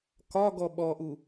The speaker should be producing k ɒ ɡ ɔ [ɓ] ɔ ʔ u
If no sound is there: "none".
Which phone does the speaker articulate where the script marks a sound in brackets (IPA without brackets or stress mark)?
ɓ